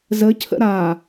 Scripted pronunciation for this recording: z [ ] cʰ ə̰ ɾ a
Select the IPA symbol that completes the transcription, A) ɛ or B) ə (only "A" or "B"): B